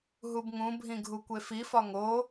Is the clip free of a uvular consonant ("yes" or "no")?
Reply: yes